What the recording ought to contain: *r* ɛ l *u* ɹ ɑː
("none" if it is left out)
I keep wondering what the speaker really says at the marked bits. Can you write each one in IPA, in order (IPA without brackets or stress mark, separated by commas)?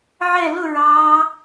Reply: ʕ, ʊ